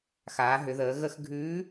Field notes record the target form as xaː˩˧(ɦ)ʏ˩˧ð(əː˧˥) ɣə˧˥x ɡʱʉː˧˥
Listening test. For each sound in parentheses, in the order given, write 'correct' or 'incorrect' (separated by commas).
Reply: correct, incorrect